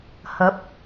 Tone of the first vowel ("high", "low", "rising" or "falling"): rising